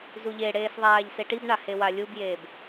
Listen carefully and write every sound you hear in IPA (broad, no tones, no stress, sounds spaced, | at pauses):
z u ʎ e ɽ eː s ðˤ aː ʎ s e ʈ i b ɳ a h e w a lʲ u b j eː b